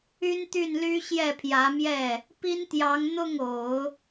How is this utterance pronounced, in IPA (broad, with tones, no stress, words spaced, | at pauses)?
y˥nt̪y˥˩nly˥ ɕjɛ˥˩pʰjä˧˥mjɛ˥˩ | pi˥nt̪jɑ˧˥ŋ n̪ʊ˥˩ŋo˨˩˦ʊ̯